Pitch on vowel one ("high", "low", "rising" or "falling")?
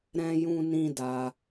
high